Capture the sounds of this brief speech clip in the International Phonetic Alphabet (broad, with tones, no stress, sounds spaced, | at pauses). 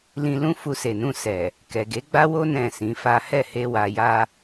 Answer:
l ĩ˧ l ũ˦ f u˧ s e˨ n ũ˧ s ɛ˨ | k ɛ˨ ɡ e˨˦ ɡ͡b a˦ w o˦ n ɛ̃˦˨ s ĩ˨˦ f a˦ h ɛ˦˨ h e˧ w a˨ j a˧